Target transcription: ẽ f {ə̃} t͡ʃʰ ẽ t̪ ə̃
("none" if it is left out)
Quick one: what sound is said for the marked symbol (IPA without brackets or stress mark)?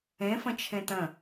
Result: ə̃